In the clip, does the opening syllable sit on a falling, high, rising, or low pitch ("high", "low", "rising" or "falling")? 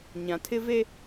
low